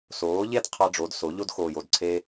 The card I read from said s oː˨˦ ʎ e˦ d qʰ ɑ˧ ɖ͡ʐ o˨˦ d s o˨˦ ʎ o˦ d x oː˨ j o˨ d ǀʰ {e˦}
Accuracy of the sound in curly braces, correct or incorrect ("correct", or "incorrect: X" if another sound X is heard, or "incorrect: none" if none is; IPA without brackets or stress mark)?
incorrect: e˧